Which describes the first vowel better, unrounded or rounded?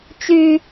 rounded